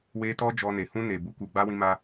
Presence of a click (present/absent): absent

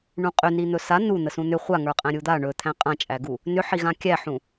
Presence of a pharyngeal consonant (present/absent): present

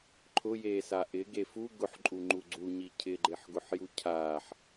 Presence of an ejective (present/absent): present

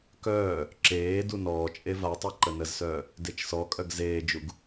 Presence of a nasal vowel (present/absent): absent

